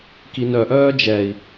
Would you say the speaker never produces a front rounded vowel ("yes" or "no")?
no